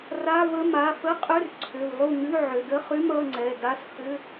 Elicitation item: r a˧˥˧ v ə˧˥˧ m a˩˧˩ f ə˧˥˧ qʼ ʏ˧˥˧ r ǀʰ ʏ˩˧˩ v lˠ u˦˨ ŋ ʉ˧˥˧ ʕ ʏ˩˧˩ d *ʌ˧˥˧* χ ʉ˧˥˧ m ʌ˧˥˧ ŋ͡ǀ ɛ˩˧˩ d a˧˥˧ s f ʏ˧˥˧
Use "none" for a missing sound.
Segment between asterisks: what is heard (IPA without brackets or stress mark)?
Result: ə˧˥˧